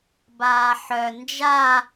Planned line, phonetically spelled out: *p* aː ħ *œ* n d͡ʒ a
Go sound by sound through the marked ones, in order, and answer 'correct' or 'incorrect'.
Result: incorrect: b, correct

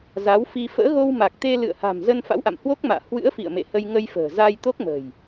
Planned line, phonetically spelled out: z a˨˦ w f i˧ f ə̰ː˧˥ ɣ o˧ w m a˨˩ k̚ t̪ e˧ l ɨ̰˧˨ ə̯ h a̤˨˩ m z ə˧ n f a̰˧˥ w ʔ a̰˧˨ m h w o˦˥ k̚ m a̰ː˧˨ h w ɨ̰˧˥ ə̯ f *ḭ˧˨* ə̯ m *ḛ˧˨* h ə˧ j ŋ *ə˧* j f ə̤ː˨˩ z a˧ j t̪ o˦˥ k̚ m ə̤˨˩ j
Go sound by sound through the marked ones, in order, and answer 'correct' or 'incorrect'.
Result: correct, correct, correct

